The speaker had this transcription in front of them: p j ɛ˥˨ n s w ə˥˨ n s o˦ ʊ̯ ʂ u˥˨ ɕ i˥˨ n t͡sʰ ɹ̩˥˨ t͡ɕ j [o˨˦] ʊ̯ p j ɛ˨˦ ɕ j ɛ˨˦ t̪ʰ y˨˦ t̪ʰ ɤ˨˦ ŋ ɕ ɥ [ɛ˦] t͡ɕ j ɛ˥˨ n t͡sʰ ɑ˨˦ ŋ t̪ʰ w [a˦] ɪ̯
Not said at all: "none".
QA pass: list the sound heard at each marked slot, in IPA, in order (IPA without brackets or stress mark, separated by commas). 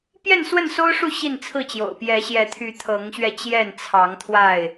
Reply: o̰˨˩, ɛ˧, a˥˨